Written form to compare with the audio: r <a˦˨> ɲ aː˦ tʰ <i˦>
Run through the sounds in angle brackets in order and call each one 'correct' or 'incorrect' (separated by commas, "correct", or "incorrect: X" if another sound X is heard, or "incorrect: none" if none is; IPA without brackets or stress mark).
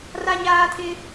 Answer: incorrect: a˦, incorrect: ɪ˦